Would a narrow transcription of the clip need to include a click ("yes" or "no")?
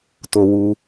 no